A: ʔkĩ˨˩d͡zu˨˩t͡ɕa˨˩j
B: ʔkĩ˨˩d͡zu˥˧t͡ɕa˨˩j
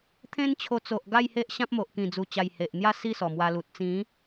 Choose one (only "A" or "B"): A